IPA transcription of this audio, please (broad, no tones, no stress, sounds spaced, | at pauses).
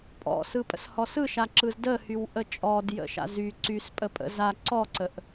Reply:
pʼ ɔ̰ s ɯ pʼ ə̰ s h ɔ s ɯ ʃ a ǁ ɯ z d ə h y w ʔ ə t͡ʃʼ ɔ d j ə̰ ʃ a̰ z y ǀ y s pʼ ə pʼ ə̰ z a ǀ ɔ ǀ ə ʔ